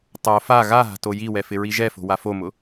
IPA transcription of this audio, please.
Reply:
tˤ o f a ɣ a ɦ a̤ t o j i w ɛ f ɪ ɹ i ʒ ɛ f o̤ w a f o m ʊ

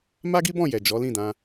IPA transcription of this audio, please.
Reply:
m a˦ ɡ i˦ b ɔ̃˦˨ j ɛ˨ d͡ʒ ɔ˨˦ l ĩ˦˨ d ã˧

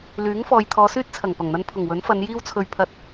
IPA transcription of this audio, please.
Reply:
l yː˨˥ ŋ f ɔː˨ j t̪ʰ ɔː˨˧ s yː˥ t̚ t͡sʰ ɐ˨˩ ŋ p ɐ˨˩ ŋ n̪ ɐ˧ n pʰ ʊ˨˩ ŋ w ɵ˨˥ n f ɐ˨˧ n j iː˥ w t͡sʰ ɵ˧ ɥ pʰ ɐ˧ t̚

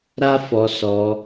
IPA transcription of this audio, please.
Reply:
ɾ a˦ f ɔ˧ s ɔ˧

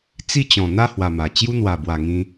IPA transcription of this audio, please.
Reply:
t͡s i˥˧ t͡ɕ ɔ̃˨˩ n̪ a˥˧ h w a˨˩ m a˨˩ t͡ɕ j u˦ n̪ w a˨˩ b w a˨˩ ŋ ĩ˧

